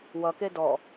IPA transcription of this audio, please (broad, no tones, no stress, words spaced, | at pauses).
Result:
wʌke dɔ